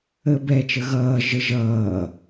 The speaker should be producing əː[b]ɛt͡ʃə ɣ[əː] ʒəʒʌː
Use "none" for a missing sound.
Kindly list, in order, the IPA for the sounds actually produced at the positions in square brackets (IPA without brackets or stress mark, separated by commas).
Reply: b, ʌː